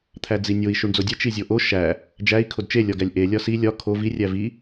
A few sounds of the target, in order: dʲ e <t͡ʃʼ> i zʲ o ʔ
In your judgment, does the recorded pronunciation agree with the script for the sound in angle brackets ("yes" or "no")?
no